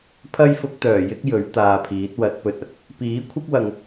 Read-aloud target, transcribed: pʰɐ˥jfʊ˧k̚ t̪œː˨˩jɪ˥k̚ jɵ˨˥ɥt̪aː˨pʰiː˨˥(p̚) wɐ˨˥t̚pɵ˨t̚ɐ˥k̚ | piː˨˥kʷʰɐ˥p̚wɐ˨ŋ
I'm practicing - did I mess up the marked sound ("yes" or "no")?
yes